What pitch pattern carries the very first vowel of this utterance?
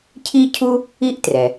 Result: high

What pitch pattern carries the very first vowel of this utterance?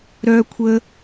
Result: high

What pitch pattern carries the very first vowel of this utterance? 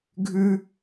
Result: high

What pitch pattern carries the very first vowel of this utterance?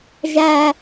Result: high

